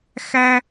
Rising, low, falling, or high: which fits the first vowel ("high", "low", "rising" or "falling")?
high